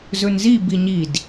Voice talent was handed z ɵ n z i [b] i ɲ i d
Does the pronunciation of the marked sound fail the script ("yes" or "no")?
no